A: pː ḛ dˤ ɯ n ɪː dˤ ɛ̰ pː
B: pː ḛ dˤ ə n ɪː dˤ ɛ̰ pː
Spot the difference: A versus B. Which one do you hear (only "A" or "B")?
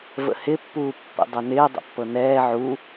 B